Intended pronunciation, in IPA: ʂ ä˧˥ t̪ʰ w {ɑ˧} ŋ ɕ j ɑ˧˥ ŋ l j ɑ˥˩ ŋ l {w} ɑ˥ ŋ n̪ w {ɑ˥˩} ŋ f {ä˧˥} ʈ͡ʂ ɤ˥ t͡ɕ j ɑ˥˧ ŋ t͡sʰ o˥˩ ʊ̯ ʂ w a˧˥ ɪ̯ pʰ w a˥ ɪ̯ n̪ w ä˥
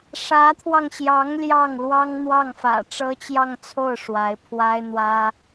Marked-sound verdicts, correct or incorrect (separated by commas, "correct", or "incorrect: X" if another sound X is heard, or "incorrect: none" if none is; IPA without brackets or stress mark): correct, correct, correct, incorrect: ä̰˨˩